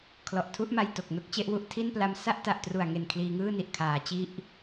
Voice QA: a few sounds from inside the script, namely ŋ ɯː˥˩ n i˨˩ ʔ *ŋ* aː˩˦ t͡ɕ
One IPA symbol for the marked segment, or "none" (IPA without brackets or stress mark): kʰ